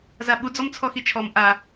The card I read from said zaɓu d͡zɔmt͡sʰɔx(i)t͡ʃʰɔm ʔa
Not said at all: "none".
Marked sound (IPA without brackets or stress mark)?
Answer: i